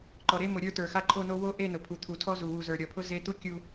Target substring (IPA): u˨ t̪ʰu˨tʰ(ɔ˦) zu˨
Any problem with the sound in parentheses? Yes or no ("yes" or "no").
no